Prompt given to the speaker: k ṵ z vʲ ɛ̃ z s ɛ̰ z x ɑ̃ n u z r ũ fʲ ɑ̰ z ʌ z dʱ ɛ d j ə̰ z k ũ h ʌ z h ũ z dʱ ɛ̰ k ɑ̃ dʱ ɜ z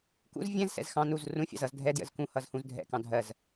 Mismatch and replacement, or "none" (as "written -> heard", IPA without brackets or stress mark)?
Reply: none